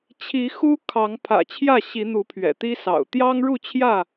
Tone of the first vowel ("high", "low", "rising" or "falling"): rising